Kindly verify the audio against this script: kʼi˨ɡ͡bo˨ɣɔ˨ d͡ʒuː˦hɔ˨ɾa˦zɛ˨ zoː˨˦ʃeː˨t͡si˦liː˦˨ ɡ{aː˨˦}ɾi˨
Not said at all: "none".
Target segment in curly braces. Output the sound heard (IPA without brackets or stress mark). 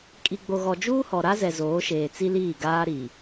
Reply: aː˦